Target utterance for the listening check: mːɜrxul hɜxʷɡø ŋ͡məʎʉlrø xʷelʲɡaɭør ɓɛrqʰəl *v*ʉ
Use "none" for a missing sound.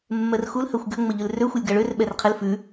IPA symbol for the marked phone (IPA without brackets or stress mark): f